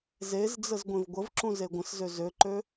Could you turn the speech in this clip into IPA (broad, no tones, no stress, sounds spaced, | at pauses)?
z e z d͡z ə z ɡʷ ẽ v ɡʷ ə v ǁ ũ z e ɡʷ ə̃ s z ø z ø ǃ ø